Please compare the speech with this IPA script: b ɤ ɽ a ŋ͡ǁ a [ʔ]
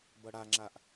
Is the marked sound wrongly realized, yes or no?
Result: no